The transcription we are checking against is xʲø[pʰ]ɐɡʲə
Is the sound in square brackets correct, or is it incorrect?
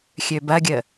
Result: incorrect